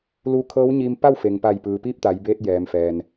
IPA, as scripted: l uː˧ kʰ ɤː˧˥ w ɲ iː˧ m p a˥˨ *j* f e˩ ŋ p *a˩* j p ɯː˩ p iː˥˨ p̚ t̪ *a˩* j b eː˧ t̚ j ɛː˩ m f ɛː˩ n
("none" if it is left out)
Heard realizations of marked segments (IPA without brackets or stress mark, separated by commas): w, a˧˩, a˩˧